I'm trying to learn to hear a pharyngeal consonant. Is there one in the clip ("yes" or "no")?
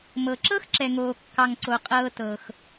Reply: no